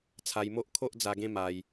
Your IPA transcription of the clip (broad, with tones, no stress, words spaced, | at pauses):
t͡sʰa˧jmo˦ʔ kʰo˦ʔd͡za˧ɡẽ˦ ma˧j